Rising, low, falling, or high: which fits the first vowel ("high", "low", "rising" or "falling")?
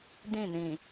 falling